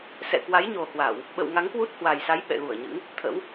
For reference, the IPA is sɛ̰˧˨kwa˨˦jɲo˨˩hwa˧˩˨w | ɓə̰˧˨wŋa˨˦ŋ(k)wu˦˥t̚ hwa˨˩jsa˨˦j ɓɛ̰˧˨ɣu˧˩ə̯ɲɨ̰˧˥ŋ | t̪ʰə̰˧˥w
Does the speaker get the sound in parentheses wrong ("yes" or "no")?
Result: no